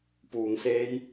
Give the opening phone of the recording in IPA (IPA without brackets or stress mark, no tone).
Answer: p